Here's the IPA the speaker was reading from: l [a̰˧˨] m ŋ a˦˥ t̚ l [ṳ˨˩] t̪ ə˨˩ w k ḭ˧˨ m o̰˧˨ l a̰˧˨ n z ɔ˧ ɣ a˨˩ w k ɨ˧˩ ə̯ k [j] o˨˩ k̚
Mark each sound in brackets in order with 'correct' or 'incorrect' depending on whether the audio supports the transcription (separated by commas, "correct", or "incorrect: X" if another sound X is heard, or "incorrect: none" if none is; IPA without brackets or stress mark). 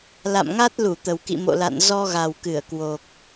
correct, incorrect: u˧˩, incorrect: w